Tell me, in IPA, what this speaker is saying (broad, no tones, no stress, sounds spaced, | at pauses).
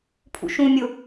pʰ ṵ ʃ ũ mʲ ʊ